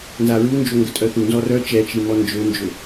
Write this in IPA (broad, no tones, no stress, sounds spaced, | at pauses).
n z a ɹ u n d͡ʒ o ŋ ɡ ə tʼ œ θ u n z ɔ r œ t͡ʃ ɛ t͡ʃ i m ɔ n d͡ʒ ø n d͡ʒ ø